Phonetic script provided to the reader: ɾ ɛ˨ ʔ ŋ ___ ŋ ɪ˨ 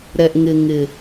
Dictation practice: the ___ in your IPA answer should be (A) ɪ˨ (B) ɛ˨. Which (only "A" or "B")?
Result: A